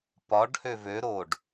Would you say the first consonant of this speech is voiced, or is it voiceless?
voiceless